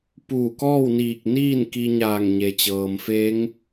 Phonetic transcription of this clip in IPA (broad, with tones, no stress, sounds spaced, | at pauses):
p uː˧˩ k ɔː˥˨ w n iː˧˩ k̚ n iː˥˨ n k i˧ ɲ aː˧˩ ŋ ɲ e˩ t͡ɕ ɤː˩ m f e˧˥ ŋ